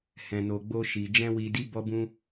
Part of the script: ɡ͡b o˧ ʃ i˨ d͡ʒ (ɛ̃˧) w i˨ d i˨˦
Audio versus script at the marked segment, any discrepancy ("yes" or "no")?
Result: no